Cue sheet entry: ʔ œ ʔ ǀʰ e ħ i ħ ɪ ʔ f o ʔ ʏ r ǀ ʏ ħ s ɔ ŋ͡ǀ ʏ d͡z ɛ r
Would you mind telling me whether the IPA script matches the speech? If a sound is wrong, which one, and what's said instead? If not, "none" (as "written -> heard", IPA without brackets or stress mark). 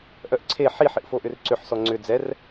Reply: none